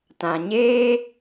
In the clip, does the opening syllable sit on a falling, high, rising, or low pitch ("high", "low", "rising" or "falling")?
low